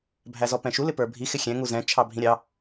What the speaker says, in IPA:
bʱæzɔpɛ̃ʃu lɪpə˞bʱi xɪxʲɛ̃ ŋuzɛ̃ t͡ʃʰɑbʱĩɾʲɑ

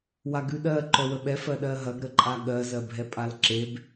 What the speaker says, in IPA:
waɡʉɗɜ ǃœwəɓɛ fɜɗɜɦɐɡ ɾəǃʼaɠɜ zɜbʱɛpʼalǁeb

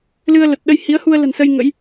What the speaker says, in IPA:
lɨ˧ə̯lə˨˩t̚ ɗə˧jhi˨˦ə̯ hu˧ə̯lə̤˨˩nsə˧j ŋə̰˧˥j

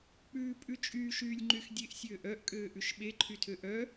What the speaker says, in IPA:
k͡pʉːpʼʉt͡ʃʼyːʃ yːlʲŋ͡ǃyxdʲeʔ sʲøːʔœʔ kʼøːʔʉʃɓe ǃʰytʰøʔœ

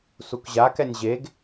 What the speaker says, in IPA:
sukʑakɛnʲ ʑeɡ

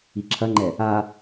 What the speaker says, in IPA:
iǁʰɐŋ͡ǃɛ | a

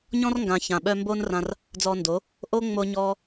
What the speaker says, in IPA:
ɲɔ̃˦rŋɡã˨ çã˨ɓœ˧ mbo˦nrã˧r | d͡zɔː˧ndo˨˦ | ʔo˦ ŋ͡mo˧ ɲɔː˦

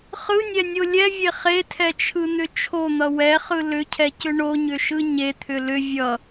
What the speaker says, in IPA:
χɯnʲɛnʲo lʲɛvʲe χetʰɛt͡ʃʰɯn̪ʏ t͡ʃʰon̪ʌ wɛχɯ lʏcʰɛcʏ ɳoɲʏʃɯ ɲet̪ʰʏ lʏ vʲʌ

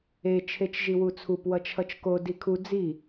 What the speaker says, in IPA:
e t͡ʃʰet͡ʃʒiwut͡sʰup wʌt͡ʃʰʌt͡ʃko dikʰu d͡zi

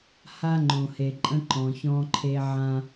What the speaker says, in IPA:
ha˦ŋ͡ǃõ˨he˨ǃʼə̃˦ ǃɔ̃˨çɔ̃˦ǃʰe˦ ʕã˦

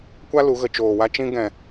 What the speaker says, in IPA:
kʷa˦ lu˨˦ɣə˨ t͡ʃoː˨wa˦ t͡ʃĩ˦ɡɛ̃˨

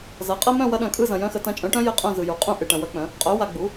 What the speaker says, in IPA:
zɐ˩˥qʼɐ˧˥˧mœ̃˥˨ wɐ˧˥ɗœ̃˨kʼɯ˥˨ zɐ̃˨jœ̃˧˥xə˩˥ tɐ̃˩˥t͡ʃʼœ̃˩˥ʈœ̃˧˥ jə˧˥˧ qʼœ̃˥˨zɯ˨ju˨ qʼũ˥˨ʔɨ˨ ʈɐ̃˨wɐ˧˥k͡pœ̃˩˥ | qʼœ˩˥ wa˨ɡ͡bu˩˥

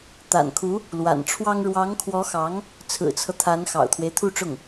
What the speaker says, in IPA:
t̪a̰˨˩nkʰu˧˥ | lwa̰˨˩nʈ͡ʂʰwɑ˥ŋ ɻwɑ˧˥ŋkʰwɔ˧˥xɑ˧˥ŋ | t͡sʰɹ̩˨˩t͡sʰɤ˦t̪ʰa˧˥n xɑ̰˨˩ʊ̯t̪ʰwe˦ɪ̯t̪ʰu˥˧ʈ͡ʂʊ˥˩ŋ

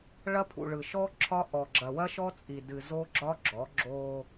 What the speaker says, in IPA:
ɭɐ˦pʰṵ˨ɭɯ˨ʃɔ˦ ǁʰɒ˦ ʔɔ˨ ɡ͡ǁɐ˨wɐ˦ʃɔ˦t͡sʼi˨ dɨ˨zo˦ɡ͡ǁɒ˦ ɡ͡ǁɔ˨˦ɡ͡ǁo˦

